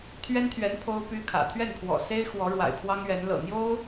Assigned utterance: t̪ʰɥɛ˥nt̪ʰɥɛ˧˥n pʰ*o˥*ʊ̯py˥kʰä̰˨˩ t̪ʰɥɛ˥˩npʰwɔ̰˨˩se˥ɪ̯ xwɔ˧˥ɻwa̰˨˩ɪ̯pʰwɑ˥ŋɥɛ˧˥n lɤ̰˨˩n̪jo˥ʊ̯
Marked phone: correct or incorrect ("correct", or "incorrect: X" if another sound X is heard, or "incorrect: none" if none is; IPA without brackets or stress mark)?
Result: correct